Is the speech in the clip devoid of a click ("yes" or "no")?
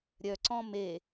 no